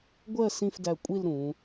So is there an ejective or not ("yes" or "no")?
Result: yes